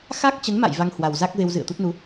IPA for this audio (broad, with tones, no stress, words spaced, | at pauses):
xa˦˥k̚t͡ɕə˨˦nma̰˧˨j va˧ŋhwa˨˩wza˦˥k̚ ve˧wzɨ̰˧˨ə̯t̪u˦˥t̚nu˨˦